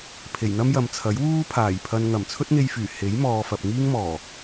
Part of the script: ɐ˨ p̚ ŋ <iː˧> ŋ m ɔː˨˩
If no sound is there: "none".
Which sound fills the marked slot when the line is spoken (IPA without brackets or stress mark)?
iː˥